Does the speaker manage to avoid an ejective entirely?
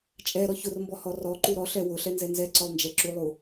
no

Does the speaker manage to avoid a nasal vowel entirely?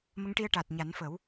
yes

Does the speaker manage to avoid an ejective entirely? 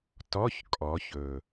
no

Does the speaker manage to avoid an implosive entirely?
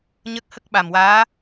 no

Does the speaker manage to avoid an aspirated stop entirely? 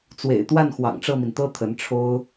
no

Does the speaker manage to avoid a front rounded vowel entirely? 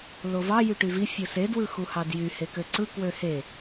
no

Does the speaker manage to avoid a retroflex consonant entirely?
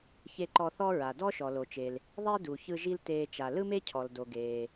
yes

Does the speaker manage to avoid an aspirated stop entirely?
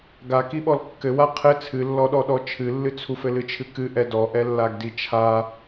no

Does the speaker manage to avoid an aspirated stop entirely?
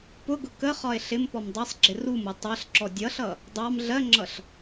yes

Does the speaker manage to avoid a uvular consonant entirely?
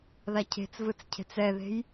yes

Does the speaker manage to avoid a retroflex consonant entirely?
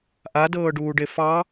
no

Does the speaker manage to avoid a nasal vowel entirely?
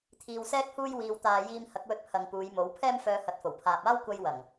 yes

